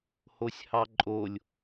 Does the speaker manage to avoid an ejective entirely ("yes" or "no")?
no